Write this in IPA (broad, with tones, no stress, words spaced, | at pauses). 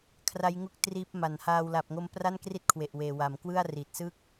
kʰra˦˥jŋu˦˥k̚ triː˦˥p̚ ma˩˦nhaː˧w la˨˩p̚ŋo˧m pra˥˩nkri˥˩t̚kʰwe˨˩ʔweː˨˩ wa˩˦mkwɯ˥˩a̯ri˨˩t̚sɯ˥˩k̚